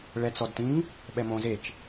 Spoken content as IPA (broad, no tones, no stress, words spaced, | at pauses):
ɭɛt͡sɔdtĩŋ | ɓɛmõ zet͡ʃ